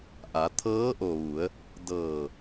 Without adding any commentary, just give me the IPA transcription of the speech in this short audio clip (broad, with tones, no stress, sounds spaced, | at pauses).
ʔ a˩˧ t̪ʰ ɤː˧˥ ʔ o˩ ʋ u˩˧ ə̯ | d ɤː˧˩